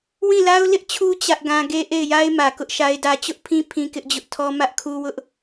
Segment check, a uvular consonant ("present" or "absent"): absent